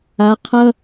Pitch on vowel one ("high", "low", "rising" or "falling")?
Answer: rising